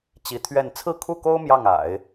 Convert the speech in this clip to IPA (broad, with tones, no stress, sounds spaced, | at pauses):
t͡ɕ i˧˥ t̪ʰ ɥ ɛ˥˧ n t͡sʰ ɹ̩˥˧ kʰ u˥˩ k o˥ ʊ̯ m j ɑ˥˩ ŋ a̰˨˩˦ ɪ̯